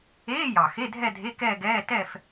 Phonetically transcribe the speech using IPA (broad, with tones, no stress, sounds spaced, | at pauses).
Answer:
eː˧˥˧ j ɑ˨˩ x e˧˥˧ dʱ ɛ˥˧ dʱ e˧˥˧ k ɛː˥˧ ɡ ɛː˧˥˧ t ɛ˥˧ f